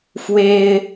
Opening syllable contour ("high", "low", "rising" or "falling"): high